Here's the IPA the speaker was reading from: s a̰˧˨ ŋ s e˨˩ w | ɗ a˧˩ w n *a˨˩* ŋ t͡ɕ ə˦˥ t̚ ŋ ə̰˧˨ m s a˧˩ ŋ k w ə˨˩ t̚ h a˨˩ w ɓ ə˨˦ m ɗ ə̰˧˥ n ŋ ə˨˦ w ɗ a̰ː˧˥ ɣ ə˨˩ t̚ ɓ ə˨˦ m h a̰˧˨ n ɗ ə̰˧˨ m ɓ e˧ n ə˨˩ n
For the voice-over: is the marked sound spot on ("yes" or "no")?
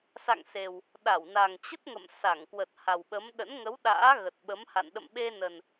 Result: yes